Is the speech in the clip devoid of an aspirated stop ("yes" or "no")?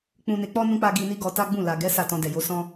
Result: yes